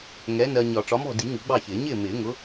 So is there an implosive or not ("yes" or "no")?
no